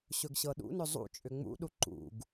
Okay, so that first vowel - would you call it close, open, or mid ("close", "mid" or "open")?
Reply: mid